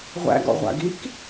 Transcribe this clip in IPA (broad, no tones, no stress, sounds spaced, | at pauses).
ʁʷ æ̰ ɡ ɔ̰ ʁʷ a̰ ɡ i k